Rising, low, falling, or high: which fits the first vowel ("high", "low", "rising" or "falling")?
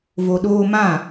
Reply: low